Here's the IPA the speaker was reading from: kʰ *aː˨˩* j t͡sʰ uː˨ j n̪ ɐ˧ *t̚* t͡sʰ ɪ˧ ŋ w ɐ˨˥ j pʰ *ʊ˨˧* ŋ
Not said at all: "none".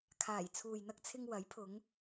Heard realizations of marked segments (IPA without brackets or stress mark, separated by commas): aː˨˩, k̚, ʊ˨˧